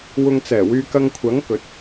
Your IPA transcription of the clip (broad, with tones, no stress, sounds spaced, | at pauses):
w ʊ˨ ŋ t͡s ɛː˨˩ w yː˨ k ɐ˧ ŋ kʷʰ ɐ˨˥ ŋ k ɵ˨˥ t̚